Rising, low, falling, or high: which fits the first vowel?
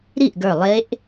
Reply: falling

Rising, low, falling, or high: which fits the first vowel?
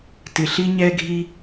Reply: low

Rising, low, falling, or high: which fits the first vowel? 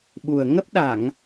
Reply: low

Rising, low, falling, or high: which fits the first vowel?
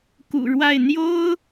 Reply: low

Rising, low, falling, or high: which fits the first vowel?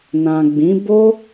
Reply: low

